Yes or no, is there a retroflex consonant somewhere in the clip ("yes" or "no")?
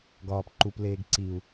no